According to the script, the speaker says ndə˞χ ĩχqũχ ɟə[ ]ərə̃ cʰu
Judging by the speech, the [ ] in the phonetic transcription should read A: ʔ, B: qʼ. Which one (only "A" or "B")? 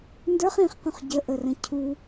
A